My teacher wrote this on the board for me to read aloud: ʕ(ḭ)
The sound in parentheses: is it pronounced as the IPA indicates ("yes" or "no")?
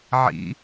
yes